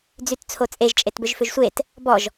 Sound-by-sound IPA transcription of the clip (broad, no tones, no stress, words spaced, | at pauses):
d͡zytt͡sʰot͡sʼeʒ t͡ʃʼetbʏʒfʏʒsʷet | bɔʒ